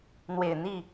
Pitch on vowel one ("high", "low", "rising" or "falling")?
low